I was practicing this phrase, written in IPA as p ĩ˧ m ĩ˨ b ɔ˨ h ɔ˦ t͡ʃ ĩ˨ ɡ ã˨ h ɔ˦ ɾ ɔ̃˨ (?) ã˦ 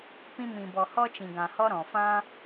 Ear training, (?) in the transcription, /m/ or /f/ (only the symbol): f